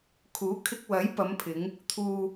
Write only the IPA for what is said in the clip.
kʰ uː˨˥ kʰ ɪ˧ k̚ w ɐ˨˥ j p ɐ˨˧ m pʰ ɪ˨˧ ŋ | t̪ʰ uː˧

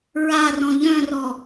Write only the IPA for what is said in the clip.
ɹ a r ɔ̃ ʎ œ̃ r ɔ

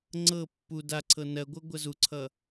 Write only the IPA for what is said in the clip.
ŋ͡ǀ ɤ pː u d a ǀʰ ɤ n ɜ ɡʷ ɤ ɡʷ ɜ z u ǀʰ ʌ

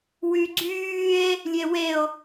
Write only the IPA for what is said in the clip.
w y ɡ͡ǀ yː e̯ | lʲ e w e o̯

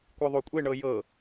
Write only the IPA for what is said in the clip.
kʷ ɯ ðˤ o kʷʼ e ɳ ɤ j ɤ

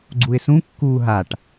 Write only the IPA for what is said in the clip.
ɡ͡ǀ u ɪ̯ s ũ kː uː ɦ a ʈ

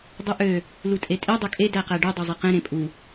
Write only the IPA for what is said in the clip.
dˤ u ʔ ø | l u tʼ e tʼ i dˤ ø kʼ e d æ q æ ɖ y dˤ o zˤ e q ẽ ɾ ẽ pʼ u

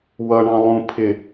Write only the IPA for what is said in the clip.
w ʌ ɳ ɑ̃ lˠ ũ pʰ ɪ

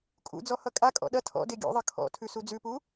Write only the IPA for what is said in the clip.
kʼ ṵ d͡z ɔ h ʌ kʼ a kʼ ɔ̰ ɗ ɐ tʰ ɔ̰ d e ɡʲ ṵ ðˤ ʌ kʰ ɔ̰ tʰ ʉ s u d͡z ʉ p u

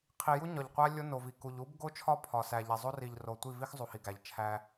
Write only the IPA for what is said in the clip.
qʰ i˨ j u˦ ɲ ɒ˨ ʎ qʷ æ˦ lʲ o˦ n o˨ v i˨ k u˨ ʎ u˦ b ɡ o˦ t͡ʃʰ ɒ˦ pʰ ɒ˨ s æ˨ ʎ e˨ zˤ o˦ r i˨ ʎ r o˨ tʷ i˦˨ v i˦ x zˤ u˨ h i˨ ɡ æ˨ ʎ t͡ʃʰ æ˦

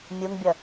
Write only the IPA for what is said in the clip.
mʲ u ŋ bʲ ʌ

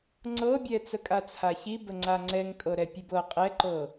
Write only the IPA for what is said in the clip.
ŋ͡ǀ ɤ bʲ ɛ t͡s ə kʼ a t͡sʰ a ç i b ə ŋ͡ǀ a ŋ͡ǀ ɛ ŋ kʼ ɤ ɾ ɛ pʲ ʉ b ɤ qʼ ɛ ǃ ɤ

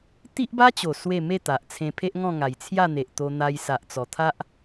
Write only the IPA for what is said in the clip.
t̪ i˦ ʔ b a˦ t͡ɕ o˨˩ s w e˥˧ m e˥˧ t̪ a˨ ʔ t͡sʰ ẽ˧ pʰ e˦ ʔ ŋ ɔ̃˥˧ ŋ a˨˩ j t͡sʰ j a˥˧ n̪ e˨ ʔ t̪ o˧ n̪ a˧ j s a˨ ʔ t͡s ɔ˨˩ t̪ʰ a˦ ʔ

